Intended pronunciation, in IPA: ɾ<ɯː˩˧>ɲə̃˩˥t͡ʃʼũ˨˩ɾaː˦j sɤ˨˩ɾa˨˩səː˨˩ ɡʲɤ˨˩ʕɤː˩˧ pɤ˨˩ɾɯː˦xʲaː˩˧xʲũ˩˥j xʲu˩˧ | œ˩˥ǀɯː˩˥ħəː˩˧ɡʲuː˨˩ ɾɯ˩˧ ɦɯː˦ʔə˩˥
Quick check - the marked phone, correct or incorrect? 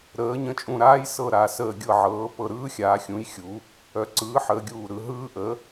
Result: incorrect: əː˩˧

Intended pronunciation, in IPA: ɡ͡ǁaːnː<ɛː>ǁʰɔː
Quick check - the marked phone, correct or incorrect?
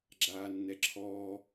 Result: incorrect: ɛ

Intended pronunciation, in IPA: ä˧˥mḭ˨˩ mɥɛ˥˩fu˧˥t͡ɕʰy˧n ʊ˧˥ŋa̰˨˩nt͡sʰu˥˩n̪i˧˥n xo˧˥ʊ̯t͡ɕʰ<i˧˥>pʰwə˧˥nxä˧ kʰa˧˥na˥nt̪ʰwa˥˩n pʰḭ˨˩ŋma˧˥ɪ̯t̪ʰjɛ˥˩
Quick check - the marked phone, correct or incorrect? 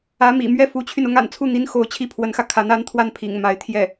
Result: incorrect: i˥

